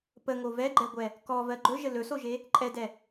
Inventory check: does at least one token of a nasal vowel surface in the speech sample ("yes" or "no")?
no